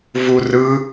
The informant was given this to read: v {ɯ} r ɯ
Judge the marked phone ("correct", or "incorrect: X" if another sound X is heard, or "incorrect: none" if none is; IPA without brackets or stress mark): incorrect: u